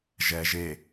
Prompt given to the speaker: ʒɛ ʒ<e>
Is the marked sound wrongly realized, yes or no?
no